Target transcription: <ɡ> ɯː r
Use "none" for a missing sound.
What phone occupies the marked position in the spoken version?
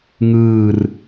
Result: ŋ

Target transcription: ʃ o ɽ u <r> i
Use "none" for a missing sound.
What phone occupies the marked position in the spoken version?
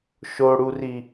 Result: r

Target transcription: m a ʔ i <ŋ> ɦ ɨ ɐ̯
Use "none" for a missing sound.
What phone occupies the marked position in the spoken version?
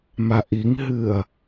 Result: ŋ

